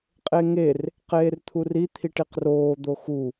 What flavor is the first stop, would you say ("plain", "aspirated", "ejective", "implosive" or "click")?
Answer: ejective